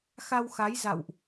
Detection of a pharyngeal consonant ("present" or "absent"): absent